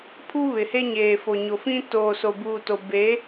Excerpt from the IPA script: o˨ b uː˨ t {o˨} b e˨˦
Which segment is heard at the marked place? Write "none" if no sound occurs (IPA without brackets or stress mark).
o˨